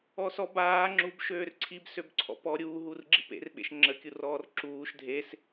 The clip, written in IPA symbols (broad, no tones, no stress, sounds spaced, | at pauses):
ɔ s ɔ b aː ŋ͡ǁ u b ʃ øː r ǀʰ i b s ø b ǀʰ ɔ̰ p ɔ ɾʲ uː ɦ u r ɡ͡ǁ i p ḛ r ɓ ḛ ʃ ŋ͡ǁ ə kʲ u r ɔː r ǁ uː ʃ dʱ e s